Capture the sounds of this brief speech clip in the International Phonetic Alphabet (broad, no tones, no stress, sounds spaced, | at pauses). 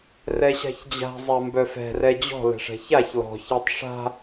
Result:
r ɛ ɕ a̤ ç d͡ʑ a̤ zˤ a m b œ f ɛ̤ r ɛ d͡ʑ ɔ̤ l ɛ̤ ʂ ɛ̤ ç a ç l ɔ̤ ç a tˤ ʂ a̤